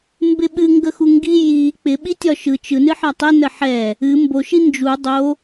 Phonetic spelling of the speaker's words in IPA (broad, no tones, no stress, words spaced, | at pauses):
mbɪɓɨ ŋɡəxuŋɡi ji k͡pɪɓi tʲɒʃɯ t͡ʃɯnɨ ħɒtˤɪ nəħɛ | ɨ mboʃi nd͡ʒu dˤo